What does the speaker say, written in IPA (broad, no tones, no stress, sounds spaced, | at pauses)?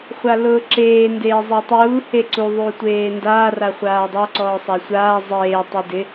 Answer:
χʷ a l ʊː ǁ eː n d eː zˤ e tˤ uː h e ǀ u ðˤ uː tʷ eː n d aː r a χʷ aː dˤ a ǀ ɔː sˤ a sʷ aː zˤ eː tˤ u d ɪ